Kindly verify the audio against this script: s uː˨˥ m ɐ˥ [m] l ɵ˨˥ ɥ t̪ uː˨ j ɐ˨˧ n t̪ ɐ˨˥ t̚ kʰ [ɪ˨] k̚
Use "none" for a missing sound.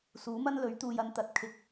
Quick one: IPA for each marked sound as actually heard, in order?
n, ɪ˨

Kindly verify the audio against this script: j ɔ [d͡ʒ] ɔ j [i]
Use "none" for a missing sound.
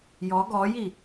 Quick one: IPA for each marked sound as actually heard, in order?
ɡ, i

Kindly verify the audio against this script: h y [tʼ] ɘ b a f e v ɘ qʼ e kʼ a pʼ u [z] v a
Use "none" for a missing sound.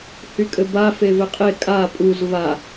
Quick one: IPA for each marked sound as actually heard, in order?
kʼ, z

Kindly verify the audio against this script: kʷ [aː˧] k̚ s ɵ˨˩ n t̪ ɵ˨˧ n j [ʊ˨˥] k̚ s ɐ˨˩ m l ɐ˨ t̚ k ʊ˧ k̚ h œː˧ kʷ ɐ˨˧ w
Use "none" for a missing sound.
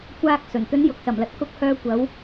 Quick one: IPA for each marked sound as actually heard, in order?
aː˧, ʊ˨

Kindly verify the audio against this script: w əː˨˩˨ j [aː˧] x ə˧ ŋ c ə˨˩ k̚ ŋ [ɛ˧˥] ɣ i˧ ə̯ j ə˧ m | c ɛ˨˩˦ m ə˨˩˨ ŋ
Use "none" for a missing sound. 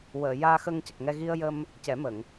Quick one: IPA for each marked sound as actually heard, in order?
aː˧, ɛ˧

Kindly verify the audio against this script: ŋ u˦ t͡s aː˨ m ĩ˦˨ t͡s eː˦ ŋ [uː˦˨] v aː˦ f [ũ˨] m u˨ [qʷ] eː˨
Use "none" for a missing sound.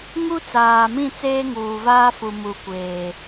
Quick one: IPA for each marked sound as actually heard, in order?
uː˨, u˨, kʷ

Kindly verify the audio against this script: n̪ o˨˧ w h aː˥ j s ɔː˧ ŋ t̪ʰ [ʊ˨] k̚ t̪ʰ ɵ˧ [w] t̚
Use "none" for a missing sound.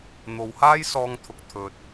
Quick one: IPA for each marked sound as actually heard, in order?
ʊ˧, none

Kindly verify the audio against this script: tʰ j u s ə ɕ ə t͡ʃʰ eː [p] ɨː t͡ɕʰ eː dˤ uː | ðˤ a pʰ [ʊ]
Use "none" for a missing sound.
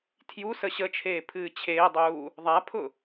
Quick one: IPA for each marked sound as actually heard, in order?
pʰ, ʊ

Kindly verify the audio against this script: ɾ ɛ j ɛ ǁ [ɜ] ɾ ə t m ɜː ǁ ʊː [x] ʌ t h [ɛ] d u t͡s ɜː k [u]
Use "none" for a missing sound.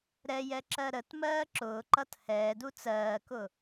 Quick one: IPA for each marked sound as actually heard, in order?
ɜ, ǃ, ɛː, ʊ

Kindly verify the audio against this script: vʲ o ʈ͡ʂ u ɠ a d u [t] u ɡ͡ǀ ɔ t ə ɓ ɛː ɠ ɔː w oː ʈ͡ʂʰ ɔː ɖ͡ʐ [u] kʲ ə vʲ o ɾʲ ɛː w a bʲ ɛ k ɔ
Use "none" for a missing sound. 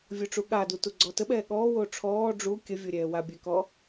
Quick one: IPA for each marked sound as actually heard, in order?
t, u

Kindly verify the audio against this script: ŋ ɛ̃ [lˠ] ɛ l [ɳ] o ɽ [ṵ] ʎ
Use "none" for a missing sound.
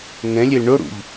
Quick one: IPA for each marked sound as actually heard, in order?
lʲ, ɳ, ṵ

